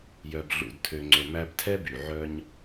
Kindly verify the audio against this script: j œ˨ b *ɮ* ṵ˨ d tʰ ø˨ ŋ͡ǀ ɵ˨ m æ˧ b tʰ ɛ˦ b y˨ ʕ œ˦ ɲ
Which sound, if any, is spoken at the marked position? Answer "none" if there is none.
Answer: ɮ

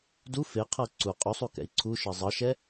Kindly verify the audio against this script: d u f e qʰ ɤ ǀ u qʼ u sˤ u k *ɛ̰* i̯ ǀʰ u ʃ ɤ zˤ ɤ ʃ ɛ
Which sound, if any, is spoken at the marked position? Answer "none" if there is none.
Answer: ɛ̰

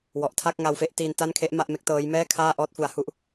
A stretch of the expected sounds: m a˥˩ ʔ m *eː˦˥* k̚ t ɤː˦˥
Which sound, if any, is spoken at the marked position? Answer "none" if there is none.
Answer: e˦˥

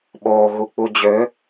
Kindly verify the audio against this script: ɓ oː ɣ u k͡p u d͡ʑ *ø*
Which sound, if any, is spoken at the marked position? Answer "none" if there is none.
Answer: ø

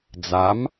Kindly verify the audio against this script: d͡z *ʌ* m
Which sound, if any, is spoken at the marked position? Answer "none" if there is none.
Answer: a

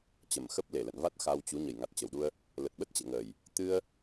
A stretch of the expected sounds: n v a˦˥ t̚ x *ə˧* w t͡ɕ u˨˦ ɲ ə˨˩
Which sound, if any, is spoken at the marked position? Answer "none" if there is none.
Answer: a˧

